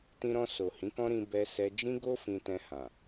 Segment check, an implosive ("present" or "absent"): absent